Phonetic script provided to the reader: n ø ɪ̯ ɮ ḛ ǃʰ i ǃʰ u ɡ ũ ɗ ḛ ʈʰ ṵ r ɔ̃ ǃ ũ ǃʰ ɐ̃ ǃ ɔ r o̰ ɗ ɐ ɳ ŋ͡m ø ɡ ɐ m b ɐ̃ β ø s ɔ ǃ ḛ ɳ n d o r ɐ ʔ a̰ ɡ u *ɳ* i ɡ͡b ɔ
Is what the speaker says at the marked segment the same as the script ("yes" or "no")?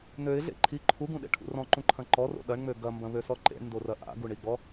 yes